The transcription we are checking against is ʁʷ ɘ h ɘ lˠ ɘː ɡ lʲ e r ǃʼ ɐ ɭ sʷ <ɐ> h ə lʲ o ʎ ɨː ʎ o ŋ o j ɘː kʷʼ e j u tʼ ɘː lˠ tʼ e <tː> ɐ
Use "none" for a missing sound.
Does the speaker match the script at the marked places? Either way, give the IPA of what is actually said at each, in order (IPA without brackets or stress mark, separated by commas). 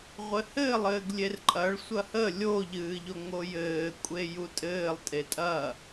ɐ, tʼ